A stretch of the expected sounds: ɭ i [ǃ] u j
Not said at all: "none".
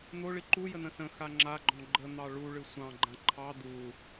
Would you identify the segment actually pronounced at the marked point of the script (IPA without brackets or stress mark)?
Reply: ǃ